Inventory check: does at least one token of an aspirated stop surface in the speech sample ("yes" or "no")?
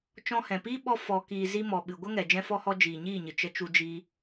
no